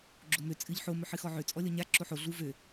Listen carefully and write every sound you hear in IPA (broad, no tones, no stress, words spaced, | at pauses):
ɡ͡ǁomø t͡sʼɨʎ ħo mɵħɨxɔʕø t͡sʼɔlʲɔɲa ǁoħo ɮu vø